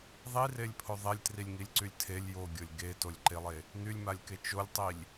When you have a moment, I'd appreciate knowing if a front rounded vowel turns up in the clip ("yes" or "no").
yes